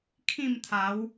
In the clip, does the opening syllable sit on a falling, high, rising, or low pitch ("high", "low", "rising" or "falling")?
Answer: falling